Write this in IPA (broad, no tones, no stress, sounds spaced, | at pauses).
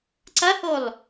ǀ ɐ h o lˠ